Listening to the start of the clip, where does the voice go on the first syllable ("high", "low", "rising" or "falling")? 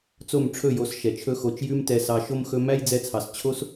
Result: falling